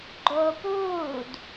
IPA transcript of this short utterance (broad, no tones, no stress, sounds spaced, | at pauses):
ɡ͡ǃ oː p uː d